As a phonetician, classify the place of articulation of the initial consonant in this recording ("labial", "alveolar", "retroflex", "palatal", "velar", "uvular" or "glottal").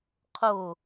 uvular